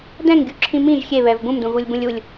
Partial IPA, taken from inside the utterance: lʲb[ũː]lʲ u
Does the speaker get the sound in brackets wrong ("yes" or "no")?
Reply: yes